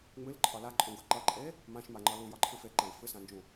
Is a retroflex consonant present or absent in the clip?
absent